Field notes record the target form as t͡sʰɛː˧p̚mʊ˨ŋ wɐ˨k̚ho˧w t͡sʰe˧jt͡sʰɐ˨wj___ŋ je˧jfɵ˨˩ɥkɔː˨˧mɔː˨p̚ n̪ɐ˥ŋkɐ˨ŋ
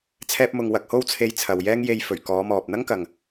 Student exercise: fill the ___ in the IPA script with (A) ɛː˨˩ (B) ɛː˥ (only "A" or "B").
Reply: B